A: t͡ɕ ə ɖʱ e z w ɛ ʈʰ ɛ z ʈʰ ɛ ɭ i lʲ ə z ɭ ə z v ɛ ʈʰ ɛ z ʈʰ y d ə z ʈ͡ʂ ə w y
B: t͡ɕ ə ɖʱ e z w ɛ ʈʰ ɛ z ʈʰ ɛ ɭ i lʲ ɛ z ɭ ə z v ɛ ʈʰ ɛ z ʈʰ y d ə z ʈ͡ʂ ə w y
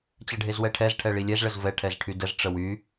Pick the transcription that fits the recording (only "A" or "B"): B